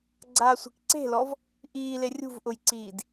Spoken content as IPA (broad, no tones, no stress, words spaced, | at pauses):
ɡ͡ǀaːsʷe̤kǀe̤lɔv | ʔiːle rʲṳvʔʊjǀiːd